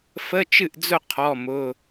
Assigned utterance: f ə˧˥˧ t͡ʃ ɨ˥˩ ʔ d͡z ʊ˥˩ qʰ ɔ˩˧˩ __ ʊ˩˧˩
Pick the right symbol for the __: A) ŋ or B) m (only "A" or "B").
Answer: B